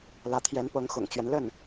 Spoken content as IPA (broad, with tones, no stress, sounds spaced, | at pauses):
l ä˧˥ t̪ʰ j ɛ˧˥ n p ɤ˧˥ ŋ x ʊ̰˨˩ ŋ t͡ɕ ɥ ɛ˦ n l ə˥˩ n